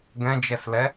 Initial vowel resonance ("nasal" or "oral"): nasal